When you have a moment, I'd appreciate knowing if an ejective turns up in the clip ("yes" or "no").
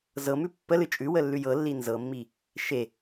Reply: yes